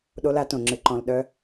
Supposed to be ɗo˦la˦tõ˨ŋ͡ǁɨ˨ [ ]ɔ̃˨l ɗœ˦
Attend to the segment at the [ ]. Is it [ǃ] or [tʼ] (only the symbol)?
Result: ǃ